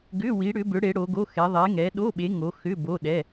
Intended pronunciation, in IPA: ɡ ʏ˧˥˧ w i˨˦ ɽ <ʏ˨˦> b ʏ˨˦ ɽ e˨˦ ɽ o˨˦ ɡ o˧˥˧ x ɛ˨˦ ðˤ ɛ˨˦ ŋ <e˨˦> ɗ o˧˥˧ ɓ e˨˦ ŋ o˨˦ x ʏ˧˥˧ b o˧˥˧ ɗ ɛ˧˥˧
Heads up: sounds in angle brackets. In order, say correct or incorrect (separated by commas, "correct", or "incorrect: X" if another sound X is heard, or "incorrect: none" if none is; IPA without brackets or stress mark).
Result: correct, incorrect: ɛ˨˦